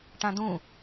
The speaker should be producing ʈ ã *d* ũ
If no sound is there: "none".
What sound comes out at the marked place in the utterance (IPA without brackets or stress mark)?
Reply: d